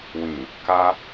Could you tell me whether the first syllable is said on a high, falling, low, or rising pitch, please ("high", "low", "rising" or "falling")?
low